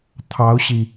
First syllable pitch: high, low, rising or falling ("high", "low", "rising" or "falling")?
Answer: rising